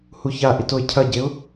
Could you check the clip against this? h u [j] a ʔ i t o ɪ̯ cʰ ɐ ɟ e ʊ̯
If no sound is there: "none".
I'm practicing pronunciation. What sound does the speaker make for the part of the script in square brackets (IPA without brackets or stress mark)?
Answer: ç